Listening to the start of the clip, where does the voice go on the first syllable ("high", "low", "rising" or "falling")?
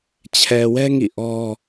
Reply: low